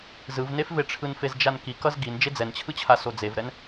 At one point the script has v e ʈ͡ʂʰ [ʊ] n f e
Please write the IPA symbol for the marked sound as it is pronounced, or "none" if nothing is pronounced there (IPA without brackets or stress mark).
ɯ